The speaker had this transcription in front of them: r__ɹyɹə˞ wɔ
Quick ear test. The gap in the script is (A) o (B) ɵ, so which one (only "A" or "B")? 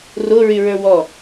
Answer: A